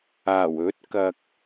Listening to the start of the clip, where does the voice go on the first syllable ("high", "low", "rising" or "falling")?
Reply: low